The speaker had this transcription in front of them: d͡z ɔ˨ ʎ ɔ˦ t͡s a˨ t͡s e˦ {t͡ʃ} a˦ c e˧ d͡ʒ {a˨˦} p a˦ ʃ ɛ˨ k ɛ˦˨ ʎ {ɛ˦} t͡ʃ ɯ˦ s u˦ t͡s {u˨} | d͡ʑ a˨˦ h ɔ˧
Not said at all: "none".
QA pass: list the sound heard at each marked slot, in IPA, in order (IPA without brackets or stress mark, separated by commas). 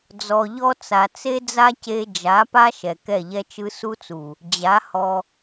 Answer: d͡z, a˨˦, ɛ˦, u˨